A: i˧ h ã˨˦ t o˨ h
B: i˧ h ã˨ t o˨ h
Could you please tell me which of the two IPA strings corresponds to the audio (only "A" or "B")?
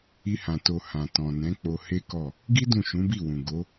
B